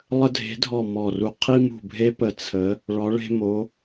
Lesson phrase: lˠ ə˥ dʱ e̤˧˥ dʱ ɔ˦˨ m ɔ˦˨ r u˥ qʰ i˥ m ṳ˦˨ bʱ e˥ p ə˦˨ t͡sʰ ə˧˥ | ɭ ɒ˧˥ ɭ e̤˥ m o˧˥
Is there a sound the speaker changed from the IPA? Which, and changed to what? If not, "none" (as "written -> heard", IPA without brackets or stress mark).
none